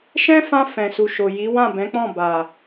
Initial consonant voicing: voiceless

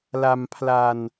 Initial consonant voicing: voiced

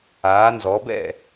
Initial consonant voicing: voiced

